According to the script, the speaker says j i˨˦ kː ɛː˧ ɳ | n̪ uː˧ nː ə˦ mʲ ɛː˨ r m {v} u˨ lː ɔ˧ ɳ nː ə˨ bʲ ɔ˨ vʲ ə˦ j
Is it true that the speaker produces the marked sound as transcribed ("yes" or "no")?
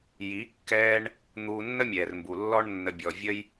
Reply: no